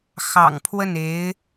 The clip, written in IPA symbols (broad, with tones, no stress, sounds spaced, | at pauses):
x ɑ̰˨˩ ŋ pʰ w ə˥˩ n e˧˥ ɪ̯